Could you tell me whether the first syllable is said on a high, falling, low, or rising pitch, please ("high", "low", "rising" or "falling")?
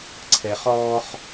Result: high